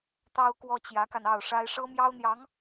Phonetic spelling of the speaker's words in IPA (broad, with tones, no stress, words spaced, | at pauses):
t̪ɑ˥ʊ̯kwɔ˥t͡ɕjä˧˥ka˧n ɑ˥˩ʊ̯ʂa˥ɪ̯ ʂɤ˥mjɑ˥ʊ̯n̪jɑ˧˥ŋ